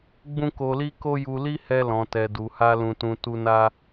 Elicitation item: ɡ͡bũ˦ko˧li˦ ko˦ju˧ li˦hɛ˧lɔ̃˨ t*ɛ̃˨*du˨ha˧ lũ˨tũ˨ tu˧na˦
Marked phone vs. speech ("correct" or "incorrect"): incorrect